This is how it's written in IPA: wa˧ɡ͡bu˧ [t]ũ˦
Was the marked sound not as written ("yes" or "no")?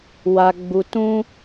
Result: no